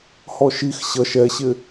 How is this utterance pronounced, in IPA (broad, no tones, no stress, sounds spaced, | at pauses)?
h ɔ ʃ i x ɕ ʌ ʃ ɛ ɕ ɪ